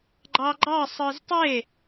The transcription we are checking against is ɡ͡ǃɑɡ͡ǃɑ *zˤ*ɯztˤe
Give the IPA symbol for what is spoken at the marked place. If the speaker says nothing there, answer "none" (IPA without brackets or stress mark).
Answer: sˤ